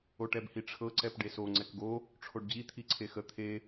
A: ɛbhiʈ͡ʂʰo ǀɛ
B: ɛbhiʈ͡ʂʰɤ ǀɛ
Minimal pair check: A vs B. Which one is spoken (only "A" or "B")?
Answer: B